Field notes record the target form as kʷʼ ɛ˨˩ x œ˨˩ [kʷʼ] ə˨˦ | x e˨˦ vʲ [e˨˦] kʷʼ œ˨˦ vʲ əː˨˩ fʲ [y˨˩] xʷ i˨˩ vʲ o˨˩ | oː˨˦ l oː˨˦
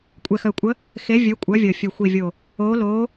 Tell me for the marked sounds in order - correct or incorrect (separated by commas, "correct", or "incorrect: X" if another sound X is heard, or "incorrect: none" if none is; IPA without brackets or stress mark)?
correct, incorrect: ø˨˦, incorrect: ø˨˩